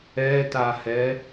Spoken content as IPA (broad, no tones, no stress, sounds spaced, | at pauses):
ɛ t a h ɛ